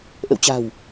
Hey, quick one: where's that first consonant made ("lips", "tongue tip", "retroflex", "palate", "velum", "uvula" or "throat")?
throat